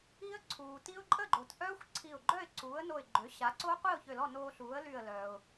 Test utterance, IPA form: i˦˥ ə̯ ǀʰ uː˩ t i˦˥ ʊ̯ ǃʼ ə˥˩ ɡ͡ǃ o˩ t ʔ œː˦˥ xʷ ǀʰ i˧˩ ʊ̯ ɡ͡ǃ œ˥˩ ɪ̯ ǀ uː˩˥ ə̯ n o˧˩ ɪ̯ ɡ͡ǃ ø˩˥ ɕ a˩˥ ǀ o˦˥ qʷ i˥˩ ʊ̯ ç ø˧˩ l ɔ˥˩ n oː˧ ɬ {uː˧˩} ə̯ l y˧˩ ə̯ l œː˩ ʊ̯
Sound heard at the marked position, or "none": uː˩˥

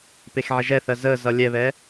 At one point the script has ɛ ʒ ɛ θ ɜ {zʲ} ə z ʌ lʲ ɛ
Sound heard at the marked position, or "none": z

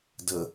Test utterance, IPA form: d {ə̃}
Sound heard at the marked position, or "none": ə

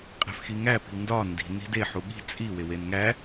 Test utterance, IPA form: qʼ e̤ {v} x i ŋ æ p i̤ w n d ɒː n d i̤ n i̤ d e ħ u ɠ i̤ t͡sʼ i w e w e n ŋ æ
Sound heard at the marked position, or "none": f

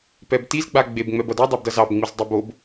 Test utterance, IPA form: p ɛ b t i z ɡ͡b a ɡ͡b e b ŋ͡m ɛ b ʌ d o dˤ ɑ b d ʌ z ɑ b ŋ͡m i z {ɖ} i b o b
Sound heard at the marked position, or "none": dˤ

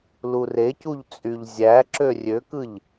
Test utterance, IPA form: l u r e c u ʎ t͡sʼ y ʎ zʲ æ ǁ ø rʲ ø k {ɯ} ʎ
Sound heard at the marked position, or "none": ɯ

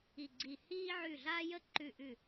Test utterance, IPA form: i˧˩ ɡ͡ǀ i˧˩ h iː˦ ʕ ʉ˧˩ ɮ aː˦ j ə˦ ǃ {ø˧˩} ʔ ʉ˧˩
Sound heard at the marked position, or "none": ʉ˧˩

